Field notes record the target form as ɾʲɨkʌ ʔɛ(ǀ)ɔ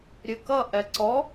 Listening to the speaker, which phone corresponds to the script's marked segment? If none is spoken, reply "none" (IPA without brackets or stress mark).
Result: ǀ